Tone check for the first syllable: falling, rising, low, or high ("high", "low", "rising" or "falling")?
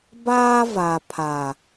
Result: high